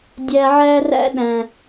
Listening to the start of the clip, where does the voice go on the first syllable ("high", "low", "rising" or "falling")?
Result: high